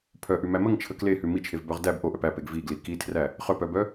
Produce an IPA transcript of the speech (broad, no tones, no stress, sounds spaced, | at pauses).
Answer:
pʰ œ ʔ ʉ m æ m ə ŋ t͡ʃʰ ə k l e h ʉ m i t͡ʃʰ e v b œ ʁ d æ b ʔ o ʔ œ p æ p e ɡ v i ɡ l i k i tʰ r æ | χ œ p œ b œ